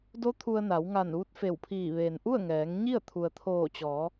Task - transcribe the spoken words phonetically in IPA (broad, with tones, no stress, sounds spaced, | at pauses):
d o˧˥ t̪ʰ u˧ ə̯ n a˩˧ w ŋ a˧˩ n ʋ u˧˥ t̚ f e˧˩ w pʰ iː˧˩ ʋ eː˩ n ʔ u˥˨ ə̯ ŋ ɛː˩˧ ŋ ɲ i˥˨ ə̯ t̪ʰ u˩ ə̯ t̪ʰ oː˧˩ t͡ɕ ɔː˩˧